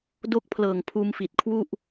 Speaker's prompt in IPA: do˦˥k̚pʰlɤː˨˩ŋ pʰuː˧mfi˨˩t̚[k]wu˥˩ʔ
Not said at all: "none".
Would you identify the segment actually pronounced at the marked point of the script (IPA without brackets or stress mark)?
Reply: kʰ